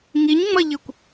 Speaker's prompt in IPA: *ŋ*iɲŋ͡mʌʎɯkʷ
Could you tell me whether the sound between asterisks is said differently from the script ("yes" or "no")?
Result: no